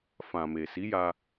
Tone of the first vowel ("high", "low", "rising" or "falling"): low